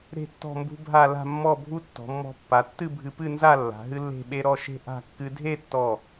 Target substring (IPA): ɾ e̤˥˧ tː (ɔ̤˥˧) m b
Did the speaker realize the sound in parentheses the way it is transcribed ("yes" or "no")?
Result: yes